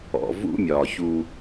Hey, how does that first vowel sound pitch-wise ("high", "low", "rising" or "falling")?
low